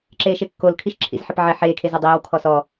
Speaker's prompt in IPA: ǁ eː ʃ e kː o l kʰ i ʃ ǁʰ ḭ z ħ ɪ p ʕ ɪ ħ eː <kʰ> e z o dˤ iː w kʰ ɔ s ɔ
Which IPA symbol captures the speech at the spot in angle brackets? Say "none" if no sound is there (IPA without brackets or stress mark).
kʰ